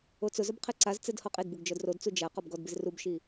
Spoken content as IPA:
o t͡s ʊ z ʊ b qʰ e ǀ a z t͡s ɛ d h ɔ qʼ e d b u ɡ d͡ʒ ɔ d r o d t͡s u d͡ʒ a q ɔ b ɡ ɔ d b ɪ z r u b ʃ i

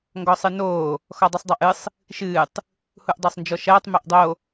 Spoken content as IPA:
ŋ ɡ ɔ sˤ ɨ n oː | x ɔ dˤ u sˤ dˤ a ʔ ɨ sˤ | ʃ ɨː tˤ | h u ʔ dˤ o sˤ n d͡ʒ ɔ ʃ ɐː tˤ m ɛ ʔ dˤ o

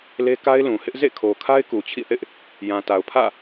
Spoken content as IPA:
l e˦ k a˦ ɪ̯ l ũ˨ h ɪ˦ ʔ z ḛ˦˨ kʰ o˨ kʰ a˦ ɪ̯ k u˨ t͡ɕʰ ḭ˦˨ θ ɪ˦ ʔ | j ã˨ t a˨ ʊ̯ pʰ ä̰˦˨

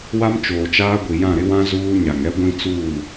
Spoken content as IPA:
w a˦ m t͡ʃ oː˨ t͡ʃ aː˦ ɡʷ i˨ j ã˦˨ ɾ ɪ˦ w ã˦ z uː˦ ɲ a˨ ŋ ɛ˦ ɡʷ ĩ˦ t͡s uː˦˨

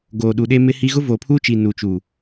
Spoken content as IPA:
ɡ oː˨ ɗ u˨ ɗ e˦ m ɪ˦ h i˦ ɣ ʊ˦ v oː˨ pʰ uː˦ t͡ʃ i˨ n u˨ t͡ʃ uː˨

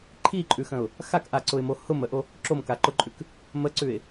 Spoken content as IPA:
ǃʰ i ǃʼ ʉ x ə̃ ʊ̯ | x a k ʔ a ǀ ʊ ɪ̯ m o h ʊ m ə ʔ o | ǁ o m k a ǃ ʊ ǃʼ ʉ k | m ə ǀ ʉ ɪ̯

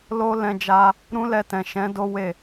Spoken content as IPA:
l o˦ l ɛ̃˧ d͡ʒ a˧ | ɾ ũ˦ l ɛ˧ t ɛ̃˨ ʃ ɛ̃˨˦ d o˦ w e˦˨

